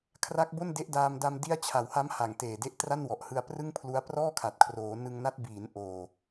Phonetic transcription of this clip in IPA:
kʰ r a˦˥ k̚ b o˥˩ n d e˦˥ ʔ d aː˧ m d a˧ m d i˦˥ a̯ t͡ɕʰ a˨˩ w h a˦˥ m h a˨˩ ŋ t eː˨˩ d e˦˥ ʔ t r a˥˩ n w ɔ˨˩ ʔ h ɯ˧ a̯ p r ɯ˥˩ ŋ pʰ l u˦˥ a̯ p r ɔː˥˩ kʰ a˨˩ t̚ kʰ r oː˩˦ n ɯ˧ ŋ n a˦˥ t̚ b iː˩˦ n ʔ oː˨˩

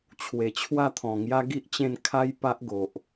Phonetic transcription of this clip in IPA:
t͡ɕʰ w e˨˩ t͡ɕʰ w a˥˧ t̪ʰ ɔ̃˨˩ ŋ j a˦ ɡ i˦ ʔ t͡ɕ ẽ˥˧ n kʰ a˦ j p a˦ ʔ ɡ o˨ ʔ

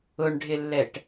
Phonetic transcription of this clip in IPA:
ʊ ɳ ɖʱ ɪ lː ɛ ʈ

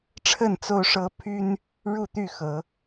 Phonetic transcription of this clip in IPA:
ʈ͡ʂʰ ə˥˨ n t͡s o˦ ʊ̯ ʂ ɤ˦ pʰ y˦ n | ɻ u˥˨ t̪ y˥˨ x ɤ˨˦

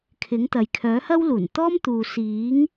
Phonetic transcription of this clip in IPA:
kʰ ɪ˨˥ ŋ t̪ ɐ˨ j kʰ œː˨˥ h ɐ˥ w l uː˨˩ n t̪ ɔː˥ m t̪ uː˨ s iː˨˥ ŋ

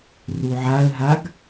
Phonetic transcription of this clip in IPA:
r u ʕ a ə̯ ɦ a ɡ

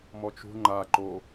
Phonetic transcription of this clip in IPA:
m ɔ t͡ʃ ṳ ŋ͡ǃ a ǃ o

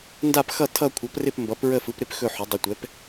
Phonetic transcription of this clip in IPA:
n d a˦˨ p x ʌ˦˨ tʰ ʌ˦˨ kʷʰ ʌ˩˥ p r ɪ˦˨ p m b ʌ˩˥ p ɹ ə˦˨ f ɯ˩˥ p ɾ ɪ˦˨ p x ɵ˦˨ ħ ɵ˩˥ dˤ ə˩˥ tʷ ɛ˩˥ p

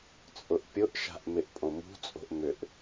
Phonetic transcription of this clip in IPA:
t͡sʼ ʊ ʔ pʲ ʊ ʔ ʃ a̤ ʔ m ɪ ʔ pʼ õ m ṳ t͡sʼ o̤ ʔ m ʏ ʔ

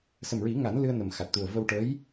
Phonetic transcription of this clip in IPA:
s ə˨˩ m ɹ i˨˩˦ ŋ a˨˩˦ n l ɨ˧ ə̯ n ə˨˩ m x a˨˩ t̚ t̪ u˨˩ ə̯ v ə˧ w ʈ ə˧˥ j

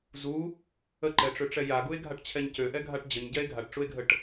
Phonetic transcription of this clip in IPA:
z u | ə ǃ ɛ ʈ͡ʂ ø ʈ͡ʂ ɛ j a ɡ u e̯ ɡʱ a ʈ t͡ɕʰ ɛ ɲ c ø ʔ ɛ ɡʱ a ʈ d͡ʑ ə ɲ ɟ ɛ e̯ ɡʱ a ʈ ʈ͡ʂ u e̯ ɡʱ ə ʈ

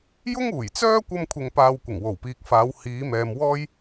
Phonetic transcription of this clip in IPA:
j ʊ˥ ŋ uː˨˩ j t͡s œː˥ kʷ ɐ˥ m kʷʰ ɪ˧ ŋ p aː˧ w kʷ ɪ˨˩ ŋ w o˨˩ w p iː˨ k̚ f aː˨˧ w h iː˨˧ m ɛː˨ m w ɔː˥ j

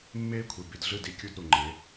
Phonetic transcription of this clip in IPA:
mː eː˦ kʷʰ e˨ b i˨ d ɮ ɯ˦˨ d i˦ kʲ u˦ d ɾ u˨ ŋ͡ǃ e˨˦

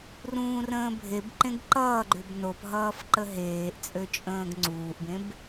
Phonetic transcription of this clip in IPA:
r ũː r ə̃ː bʱ e b ǃ ẽ ɡ ǃ ʌː ɡ͡ǃ ʏ b n o p ɦ ʌː f ǃ ə ɦ eː ʔ t͡sʼ ø t͡ʃʼ ə̃ː ɡ ŋ͡ǀ uː ʔ b ẽ b

